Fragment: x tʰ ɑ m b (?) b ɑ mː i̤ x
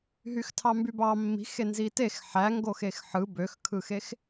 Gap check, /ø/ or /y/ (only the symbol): y